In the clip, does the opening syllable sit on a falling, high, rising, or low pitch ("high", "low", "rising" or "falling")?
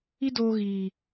high